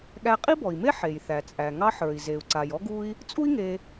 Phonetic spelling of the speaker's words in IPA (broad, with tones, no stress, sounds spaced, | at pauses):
ɠ æ˧ qʼ i˥ b ɔ˩ i̯ m e˥ ħ e˩ j θ æ˩ t͡sʼ æ˩ ŋ ɑ˥ ħ ə˞˩ i̯ z e˩ u̯ ǀ a˩ j ɔ˥ ɡ u˥ i̯ | t͡sʼ u˥ i̯ ŋ e˧